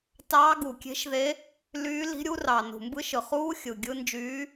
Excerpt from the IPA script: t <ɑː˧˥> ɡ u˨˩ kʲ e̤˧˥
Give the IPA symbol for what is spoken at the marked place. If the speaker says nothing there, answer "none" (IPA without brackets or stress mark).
ɑː˧˥